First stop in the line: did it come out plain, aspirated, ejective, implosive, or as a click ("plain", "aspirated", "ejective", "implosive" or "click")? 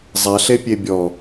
plain